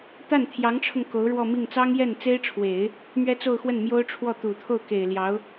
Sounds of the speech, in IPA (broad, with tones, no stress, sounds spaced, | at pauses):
t̪ a˥˩ n t̪ʰ j ɑ˧˥ ŋ ʈ͡ʂʰ ʊ˧ ŋ k o˧˥ ʊ̯ ɻ w ɔ˥˧ m i˥˩ ŋ t͡s ɑ˥ ŋ j ɛ˥˩ n t͡s e˥ ɪ̯ ʈ͡ʂʰ w e˨˩˦ ɪ̯ | m ɥ ɛ˥ t͡s o˥˧ ʊ̯ x w ə˥˩ n m j o˥ ʊ̯ ʈ͡ʂʰ w ɔ˥˩ t̪ u˨˩ t̪ʰ o˥˩ ʊ̯ k e˨˩ ɪ̯ l j ɑ˧˥ ʊ̯